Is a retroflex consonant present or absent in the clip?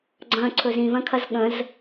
absent